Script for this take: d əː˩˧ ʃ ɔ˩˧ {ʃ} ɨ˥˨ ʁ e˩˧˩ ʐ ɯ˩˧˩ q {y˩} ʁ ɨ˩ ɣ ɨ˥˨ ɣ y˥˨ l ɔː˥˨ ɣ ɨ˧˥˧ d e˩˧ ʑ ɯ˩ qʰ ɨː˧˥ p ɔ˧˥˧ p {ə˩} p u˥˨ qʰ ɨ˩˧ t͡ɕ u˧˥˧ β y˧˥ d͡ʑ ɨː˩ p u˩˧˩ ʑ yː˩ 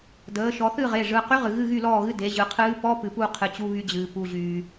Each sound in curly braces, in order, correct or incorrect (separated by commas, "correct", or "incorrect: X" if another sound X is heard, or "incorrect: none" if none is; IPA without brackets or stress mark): incorrect: θ, incorrect: y˧˥, incorrect: ɨ˩